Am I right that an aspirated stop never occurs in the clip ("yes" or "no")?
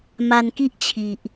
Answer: no